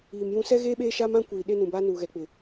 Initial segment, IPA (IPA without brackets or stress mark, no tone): iː